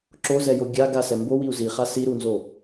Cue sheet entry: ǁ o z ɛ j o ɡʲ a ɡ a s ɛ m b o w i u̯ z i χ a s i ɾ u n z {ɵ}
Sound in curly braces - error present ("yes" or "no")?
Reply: yes